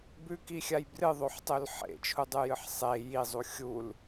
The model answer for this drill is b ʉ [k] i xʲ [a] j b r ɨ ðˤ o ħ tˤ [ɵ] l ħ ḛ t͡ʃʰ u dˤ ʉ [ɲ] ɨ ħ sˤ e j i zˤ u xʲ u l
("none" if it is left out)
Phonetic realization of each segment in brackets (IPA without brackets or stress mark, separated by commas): k, a, ɵ, j